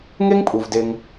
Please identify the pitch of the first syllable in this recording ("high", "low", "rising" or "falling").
high